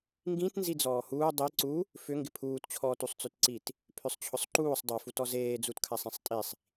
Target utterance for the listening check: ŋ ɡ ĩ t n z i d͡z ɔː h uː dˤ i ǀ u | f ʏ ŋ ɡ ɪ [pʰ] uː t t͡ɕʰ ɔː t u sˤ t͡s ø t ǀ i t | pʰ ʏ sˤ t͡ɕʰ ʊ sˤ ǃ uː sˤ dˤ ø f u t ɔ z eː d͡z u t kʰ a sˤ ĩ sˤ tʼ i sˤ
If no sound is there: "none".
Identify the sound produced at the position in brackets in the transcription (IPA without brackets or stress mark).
pʰ